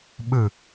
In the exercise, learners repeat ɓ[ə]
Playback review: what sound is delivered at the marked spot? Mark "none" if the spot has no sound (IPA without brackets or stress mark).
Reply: ɯ